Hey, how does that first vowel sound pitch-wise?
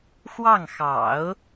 falling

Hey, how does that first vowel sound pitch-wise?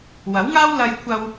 rising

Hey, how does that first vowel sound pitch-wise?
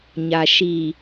low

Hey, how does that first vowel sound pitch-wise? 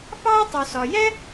high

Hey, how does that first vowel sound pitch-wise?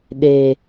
low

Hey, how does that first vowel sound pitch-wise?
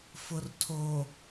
low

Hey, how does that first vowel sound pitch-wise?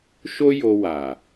high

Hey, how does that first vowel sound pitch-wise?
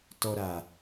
low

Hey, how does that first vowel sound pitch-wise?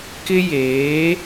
high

